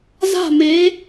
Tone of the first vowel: falling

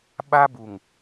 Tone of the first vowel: high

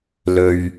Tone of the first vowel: high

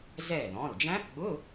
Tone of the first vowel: falling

